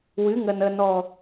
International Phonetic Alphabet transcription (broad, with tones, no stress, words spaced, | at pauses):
wɨ˨˦ŋə˨n ə˨nɔ˨